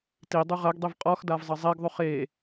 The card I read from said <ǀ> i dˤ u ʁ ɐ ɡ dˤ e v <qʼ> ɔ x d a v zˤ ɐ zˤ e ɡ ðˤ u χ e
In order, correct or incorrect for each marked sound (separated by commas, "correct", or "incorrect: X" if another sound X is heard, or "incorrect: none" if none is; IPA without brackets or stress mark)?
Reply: incorrect: t, correct